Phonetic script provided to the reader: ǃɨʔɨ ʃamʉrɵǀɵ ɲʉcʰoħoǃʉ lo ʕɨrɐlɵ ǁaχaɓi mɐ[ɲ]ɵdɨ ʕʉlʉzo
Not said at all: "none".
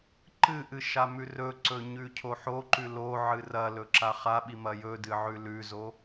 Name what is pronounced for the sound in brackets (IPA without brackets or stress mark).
j